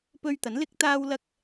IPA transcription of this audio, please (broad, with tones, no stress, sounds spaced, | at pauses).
p ɵ˧ ɥ t̪ ɐ˨˥ n l ɪ˧ k̚ t̪ aː˧ w l ɐ˧ k̚